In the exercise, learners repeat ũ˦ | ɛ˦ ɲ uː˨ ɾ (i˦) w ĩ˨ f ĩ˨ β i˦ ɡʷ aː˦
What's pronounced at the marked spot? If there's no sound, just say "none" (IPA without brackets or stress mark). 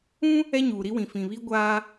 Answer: i˦